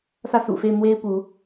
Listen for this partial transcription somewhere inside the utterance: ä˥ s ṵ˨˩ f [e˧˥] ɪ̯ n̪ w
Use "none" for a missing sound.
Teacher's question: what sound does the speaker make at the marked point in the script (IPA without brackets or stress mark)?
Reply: e˥˩